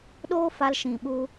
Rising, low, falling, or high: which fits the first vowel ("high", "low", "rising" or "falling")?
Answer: high